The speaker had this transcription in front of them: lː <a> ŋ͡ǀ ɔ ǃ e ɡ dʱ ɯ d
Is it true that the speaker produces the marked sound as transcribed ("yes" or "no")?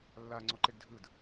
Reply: yes